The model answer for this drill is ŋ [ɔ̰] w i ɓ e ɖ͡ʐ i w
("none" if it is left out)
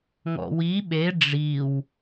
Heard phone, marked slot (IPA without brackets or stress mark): ɔ̰